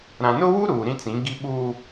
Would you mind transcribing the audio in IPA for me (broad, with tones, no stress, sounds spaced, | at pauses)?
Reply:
ɾ ã˨ n ʊ˦ w u˦ ɾ uː˨ ɾ ĩ˦ t͡s ĩ˨˦ ɡ i˦ ɓ u˦